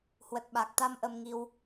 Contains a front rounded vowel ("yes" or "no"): no